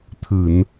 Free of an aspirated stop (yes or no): no